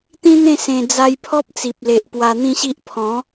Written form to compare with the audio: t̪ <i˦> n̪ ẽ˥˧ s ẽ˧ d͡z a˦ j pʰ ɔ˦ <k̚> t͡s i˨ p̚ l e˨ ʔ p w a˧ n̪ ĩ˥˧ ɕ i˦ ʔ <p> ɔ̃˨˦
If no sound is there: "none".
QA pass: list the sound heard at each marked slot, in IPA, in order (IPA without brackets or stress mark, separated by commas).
ĩ˦, p̚, pʰ